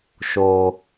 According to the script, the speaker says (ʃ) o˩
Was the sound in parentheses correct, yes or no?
yes